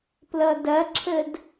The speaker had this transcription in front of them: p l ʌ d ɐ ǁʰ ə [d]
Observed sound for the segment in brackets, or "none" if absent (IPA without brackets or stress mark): d